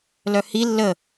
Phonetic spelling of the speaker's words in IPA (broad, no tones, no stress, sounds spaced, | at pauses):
l œ h i lː ə